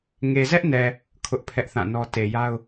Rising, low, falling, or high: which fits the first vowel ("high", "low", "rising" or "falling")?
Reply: low